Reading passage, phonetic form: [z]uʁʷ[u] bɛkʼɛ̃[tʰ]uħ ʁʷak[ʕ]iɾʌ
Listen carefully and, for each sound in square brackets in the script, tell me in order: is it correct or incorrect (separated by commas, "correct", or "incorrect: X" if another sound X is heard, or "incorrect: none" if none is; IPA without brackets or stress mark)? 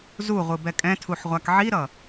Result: correct, incorrect: ɯ, correct, correct